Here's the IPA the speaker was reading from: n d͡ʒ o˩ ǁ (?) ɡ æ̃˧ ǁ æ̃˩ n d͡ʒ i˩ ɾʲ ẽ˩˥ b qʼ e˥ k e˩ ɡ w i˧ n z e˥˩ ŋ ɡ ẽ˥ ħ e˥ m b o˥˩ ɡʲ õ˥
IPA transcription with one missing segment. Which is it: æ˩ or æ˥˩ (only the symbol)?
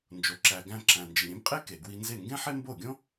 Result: æ˩